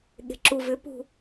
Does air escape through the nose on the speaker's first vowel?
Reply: no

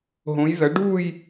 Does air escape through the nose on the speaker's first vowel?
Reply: yes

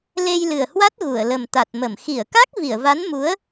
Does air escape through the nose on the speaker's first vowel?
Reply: no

